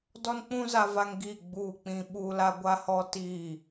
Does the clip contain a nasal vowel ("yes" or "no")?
yes